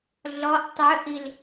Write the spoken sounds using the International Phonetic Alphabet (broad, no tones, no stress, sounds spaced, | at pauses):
ɮ ɔ ʔ tˤ œ ʔ i l